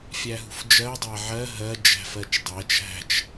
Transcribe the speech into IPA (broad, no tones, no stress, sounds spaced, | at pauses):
fʲ æ ɦ ṳ f d͡ʒ ɜ dˤ æ ʕ ɜ ɦ ɜ d͡ʒ æ̤ f ɜ t͡ʃ dˤ æ t͡ʃ ɦ æ̤ t͡ʃ